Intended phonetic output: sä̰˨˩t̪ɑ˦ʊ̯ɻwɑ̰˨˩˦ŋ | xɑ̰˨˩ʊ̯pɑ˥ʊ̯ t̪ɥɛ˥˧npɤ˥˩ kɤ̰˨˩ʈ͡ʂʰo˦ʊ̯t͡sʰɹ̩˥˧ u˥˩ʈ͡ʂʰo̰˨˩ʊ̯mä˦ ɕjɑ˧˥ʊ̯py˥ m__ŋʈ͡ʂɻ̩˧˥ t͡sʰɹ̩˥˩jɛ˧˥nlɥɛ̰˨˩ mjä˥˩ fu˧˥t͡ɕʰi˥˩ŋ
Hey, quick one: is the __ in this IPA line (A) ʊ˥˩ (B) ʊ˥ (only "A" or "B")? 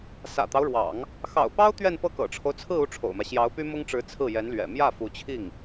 B